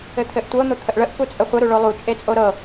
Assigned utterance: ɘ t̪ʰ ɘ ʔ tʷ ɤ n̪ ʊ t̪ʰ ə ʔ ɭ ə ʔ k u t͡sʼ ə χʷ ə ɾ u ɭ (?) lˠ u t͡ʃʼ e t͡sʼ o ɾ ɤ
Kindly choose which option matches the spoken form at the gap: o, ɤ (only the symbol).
o